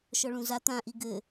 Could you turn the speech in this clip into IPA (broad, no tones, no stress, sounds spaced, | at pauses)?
ʃ ɔ ɭ ũ z a t̪ ã ʔ i ɡ ɘ